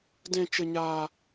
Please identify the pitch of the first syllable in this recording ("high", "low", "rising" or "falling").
high